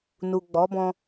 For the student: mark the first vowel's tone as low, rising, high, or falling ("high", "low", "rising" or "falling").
low